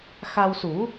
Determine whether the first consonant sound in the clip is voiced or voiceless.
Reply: voiceless